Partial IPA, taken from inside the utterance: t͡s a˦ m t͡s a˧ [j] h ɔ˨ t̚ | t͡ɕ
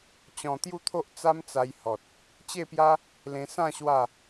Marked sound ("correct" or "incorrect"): correct